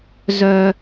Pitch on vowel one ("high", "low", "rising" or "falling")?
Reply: low